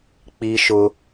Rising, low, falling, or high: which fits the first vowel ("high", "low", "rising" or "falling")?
high